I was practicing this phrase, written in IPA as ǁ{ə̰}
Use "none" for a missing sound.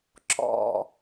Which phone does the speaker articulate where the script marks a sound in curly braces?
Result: ɔ̰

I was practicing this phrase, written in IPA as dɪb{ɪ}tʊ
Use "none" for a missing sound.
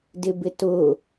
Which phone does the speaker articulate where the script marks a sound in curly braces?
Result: ɪ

